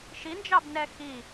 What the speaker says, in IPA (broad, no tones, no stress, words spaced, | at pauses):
ʃind͡ʒɑbnɛ xi